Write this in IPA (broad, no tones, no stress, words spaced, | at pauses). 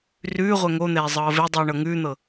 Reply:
rʉːʁʷɛ ŋon̪ɛː zˤɤːvedˤʉː ɳɤŋʉːn̪ɤ